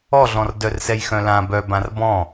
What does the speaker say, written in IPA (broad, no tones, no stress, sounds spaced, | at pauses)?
ɔ ɮ ɔ̃ r d œ r s ɛ j x œ̃ l ã b œ b ã r b ɔ̃